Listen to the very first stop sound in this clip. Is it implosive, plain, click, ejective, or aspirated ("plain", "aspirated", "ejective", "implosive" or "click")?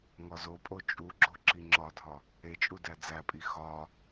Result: ejective